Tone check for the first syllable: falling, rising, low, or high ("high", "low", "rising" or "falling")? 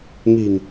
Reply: low